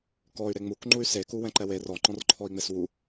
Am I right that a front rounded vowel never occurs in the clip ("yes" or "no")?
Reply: no